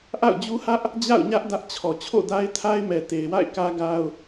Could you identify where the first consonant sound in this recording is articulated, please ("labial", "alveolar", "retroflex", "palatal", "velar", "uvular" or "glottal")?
glottal